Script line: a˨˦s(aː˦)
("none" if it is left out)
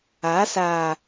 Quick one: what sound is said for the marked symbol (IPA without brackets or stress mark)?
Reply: aː˨